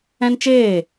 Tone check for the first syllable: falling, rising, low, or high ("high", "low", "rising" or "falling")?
high